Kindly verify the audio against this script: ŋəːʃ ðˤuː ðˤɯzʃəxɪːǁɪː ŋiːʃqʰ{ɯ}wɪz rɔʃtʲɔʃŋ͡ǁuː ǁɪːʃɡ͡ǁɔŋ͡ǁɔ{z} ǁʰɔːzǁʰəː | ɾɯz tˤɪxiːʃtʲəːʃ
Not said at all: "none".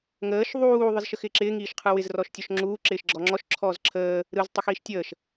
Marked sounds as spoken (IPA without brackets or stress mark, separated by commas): ɯ, ʃ